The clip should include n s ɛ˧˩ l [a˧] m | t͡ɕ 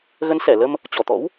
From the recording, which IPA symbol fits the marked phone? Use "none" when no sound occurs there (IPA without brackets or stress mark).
ə˧